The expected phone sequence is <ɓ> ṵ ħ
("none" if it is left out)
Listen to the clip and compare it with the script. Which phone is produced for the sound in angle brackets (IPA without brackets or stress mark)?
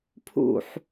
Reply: pʰ